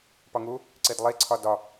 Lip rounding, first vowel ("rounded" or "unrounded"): rounded